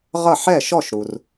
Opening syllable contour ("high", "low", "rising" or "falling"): falling